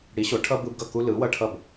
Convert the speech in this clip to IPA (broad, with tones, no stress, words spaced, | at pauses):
ɽi˩˥ɕo˩˥ʈʰʌ˦ bɯ˦bɡʌ˥˩ ku˦lɯ˩˥wʌ˦ ʈʰʌ˥˩b